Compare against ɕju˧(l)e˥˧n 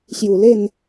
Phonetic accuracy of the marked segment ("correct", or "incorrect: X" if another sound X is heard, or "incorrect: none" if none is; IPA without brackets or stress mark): correct